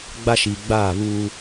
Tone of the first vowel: high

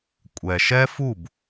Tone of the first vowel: low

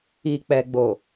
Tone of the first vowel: low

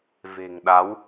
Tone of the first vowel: low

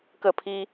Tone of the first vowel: falling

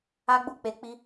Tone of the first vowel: high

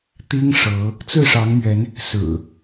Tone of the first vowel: high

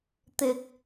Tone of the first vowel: low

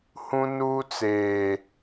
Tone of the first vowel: high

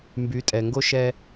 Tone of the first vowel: rising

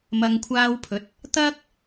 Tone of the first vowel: low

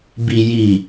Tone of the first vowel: low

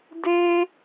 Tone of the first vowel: high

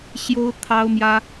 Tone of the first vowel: high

